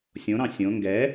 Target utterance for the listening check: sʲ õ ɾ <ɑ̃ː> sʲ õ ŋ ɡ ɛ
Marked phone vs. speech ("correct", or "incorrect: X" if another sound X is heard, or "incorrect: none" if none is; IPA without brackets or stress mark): incorrect: ɑ̃